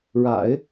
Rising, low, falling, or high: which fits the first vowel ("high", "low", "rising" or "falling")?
low